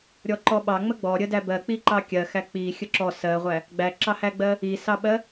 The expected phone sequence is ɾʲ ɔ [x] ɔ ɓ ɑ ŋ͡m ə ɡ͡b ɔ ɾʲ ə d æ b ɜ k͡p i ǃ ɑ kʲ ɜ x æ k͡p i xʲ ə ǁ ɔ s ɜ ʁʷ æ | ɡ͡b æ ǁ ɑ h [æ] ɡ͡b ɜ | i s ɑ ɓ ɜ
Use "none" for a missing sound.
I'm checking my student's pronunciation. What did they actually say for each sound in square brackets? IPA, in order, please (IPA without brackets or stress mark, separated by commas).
ǃ, æ